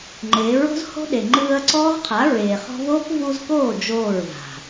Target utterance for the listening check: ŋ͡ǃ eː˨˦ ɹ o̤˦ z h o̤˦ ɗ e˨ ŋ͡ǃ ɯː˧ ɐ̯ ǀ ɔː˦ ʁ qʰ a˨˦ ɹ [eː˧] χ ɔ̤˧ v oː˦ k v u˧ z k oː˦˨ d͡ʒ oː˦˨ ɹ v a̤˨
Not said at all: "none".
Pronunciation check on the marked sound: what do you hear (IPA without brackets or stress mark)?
eː˨